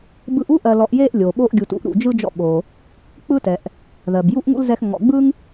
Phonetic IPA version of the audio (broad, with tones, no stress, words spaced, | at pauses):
bɯ˦ʔ u˥ʔɜ˨lɔ˨ʔje˦ʔ lʲo˩ɓo˦ʔ ɡʲu˨tṵ˦ʔ ɾṵ˩d͡ʒɯ˥d͡ʒɔ̰˦ ɓo˩ | k͡pɯ˦tɛ˩ʔ | ðɜ˩bju˥ʔŋṵ˥lzɛ˦x ŋɔ̰˨ɡ͡bɯ˥ŋ